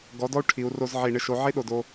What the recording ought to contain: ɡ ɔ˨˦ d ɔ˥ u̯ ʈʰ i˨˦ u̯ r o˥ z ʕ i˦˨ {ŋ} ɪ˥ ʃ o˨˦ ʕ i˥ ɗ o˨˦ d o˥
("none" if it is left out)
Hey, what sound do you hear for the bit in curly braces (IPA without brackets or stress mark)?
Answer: ɳ